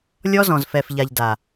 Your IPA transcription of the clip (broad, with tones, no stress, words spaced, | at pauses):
lʲɔ˦zɔ̃˨zfɛ˨fʎa˨ʎ da˨